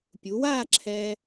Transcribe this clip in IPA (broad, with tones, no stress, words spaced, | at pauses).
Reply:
pʲu˩˧waː˥˧ǁʰɛː˧